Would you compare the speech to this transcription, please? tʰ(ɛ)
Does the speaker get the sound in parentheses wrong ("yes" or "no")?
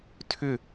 yes